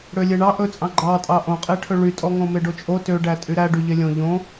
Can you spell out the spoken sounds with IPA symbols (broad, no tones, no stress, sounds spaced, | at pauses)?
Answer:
ɽ ø lʲ e ɳ ɑ ʔ ɵ t͡sʼ ɑ̃ ɡ͡ǃ ɑ tʼ ɑ ʔ õ qʼ e ʈʰ ɵ ɭ y tʼ ɔ ŋ õ m e ɖ o t͡ʃʼ o t ø ɖ æ tʼ y ɾ æ ɖ y ʎ e lʲ õ ʎ õ